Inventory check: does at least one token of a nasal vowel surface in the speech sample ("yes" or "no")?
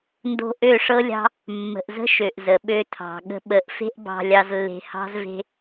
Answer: no